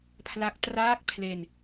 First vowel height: low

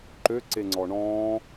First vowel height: mid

